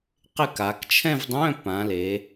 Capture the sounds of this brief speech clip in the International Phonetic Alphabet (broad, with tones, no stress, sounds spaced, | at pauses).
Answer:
q ɪ˥˧ k a˩˧ k t͡ʃʰ ɛ̃˥˧ v dˤ œ̃˧˥˧ p ã˩˧ l e˩˧